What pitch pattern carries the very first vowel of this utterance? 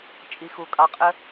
low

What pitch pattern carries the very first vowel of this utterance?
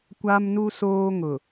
high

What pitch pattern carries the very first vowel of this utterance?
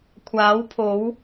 rising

